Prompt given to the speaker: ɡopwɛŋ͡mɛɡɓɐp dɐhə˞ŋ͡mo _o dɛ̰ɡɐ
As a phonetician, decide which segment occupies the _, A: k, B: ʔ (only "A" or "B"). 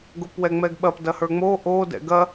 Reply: B